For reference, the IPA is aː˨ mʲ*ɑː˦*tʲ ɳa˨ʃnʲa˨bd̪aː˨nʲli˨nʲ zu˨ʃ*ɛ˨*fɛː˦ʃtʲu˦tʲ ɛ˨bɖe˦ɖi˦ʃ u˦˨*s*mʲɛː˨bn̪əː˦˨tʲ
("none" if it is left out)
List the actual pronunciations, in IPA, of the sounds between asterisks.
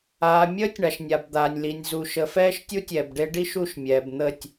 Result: əː˦, ə˨, ʃ

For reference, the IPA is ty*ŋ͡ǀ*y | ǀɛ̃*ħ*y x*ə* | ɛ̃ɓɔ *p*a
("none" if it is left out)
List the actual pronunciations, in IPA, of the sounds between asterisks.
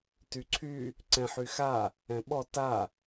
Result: ǀʰ, ħ, a, t

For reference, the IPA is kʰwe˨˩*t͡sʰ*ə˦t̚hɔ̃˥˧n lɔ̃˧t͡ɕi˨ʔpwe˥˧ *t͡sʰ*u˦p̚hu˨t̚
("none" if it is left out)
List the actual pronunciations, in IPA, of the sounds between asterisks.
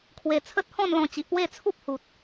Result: t͡sʰ, t͡sʰ

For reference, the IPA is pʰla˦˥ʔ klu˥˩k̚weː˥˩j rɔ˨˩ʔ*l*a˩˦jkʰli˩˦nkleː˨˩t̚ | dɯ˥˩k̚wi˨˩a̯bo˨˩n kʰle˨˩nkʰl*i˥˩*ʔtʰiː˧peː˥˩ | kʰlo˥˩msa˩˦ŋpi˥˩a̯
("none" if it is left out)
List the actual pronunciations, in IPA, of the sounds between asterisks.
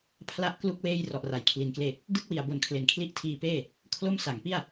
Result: r, i˥˩

